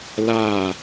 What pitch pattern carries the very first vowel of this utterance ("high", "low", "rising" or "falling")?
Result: falling